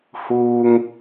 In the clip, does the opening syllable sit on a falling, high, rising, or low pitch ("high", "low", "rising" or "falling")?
high